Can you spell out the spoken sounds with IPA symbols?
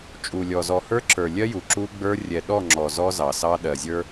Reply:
t͡ʃʼu˨lʲɔ˨zɔ˨ hə˞˦ǁə˞˨lʲɜ˦ju˨ ǁu˦ɡ͡bə˞˦ rʲɛ˨ɗɔ˦˨ŋ͡ǁɔ˨ zɔ˦zɑ˨sɑ˦ ɗɜ˨zʲə˞˦

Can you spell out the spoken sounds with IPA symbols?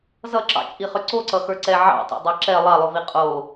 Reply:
zʌǁɑ̰t͡ʃʼiχʏ ǀoǀʌxə˞ǀɛ ʕɑ̰tˤo̰dˤɑ ǁɛ lˠɑlˠovi qʼo

